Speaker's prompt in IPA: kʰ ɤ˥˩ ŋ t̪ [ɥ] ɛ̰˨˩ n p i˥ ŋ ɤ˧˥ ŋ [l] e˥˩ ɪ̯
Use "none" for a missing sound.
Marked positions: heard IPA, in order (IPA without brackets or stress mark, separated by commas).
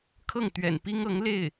ɥ, l